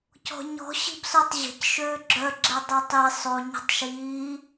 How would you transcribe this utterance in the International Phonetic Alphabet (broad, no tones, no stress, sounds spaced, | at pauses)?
c ɔ̤ ɲ ɔ̤ ɕ i̤ b s o tˤ ʑ ə̤ c ʃ øː ɡ͡ǁ œ ɡ͡ǁ ɛ dˤ ø tˤ i sˤ o ɲ ə̤ tˤ ʃ iː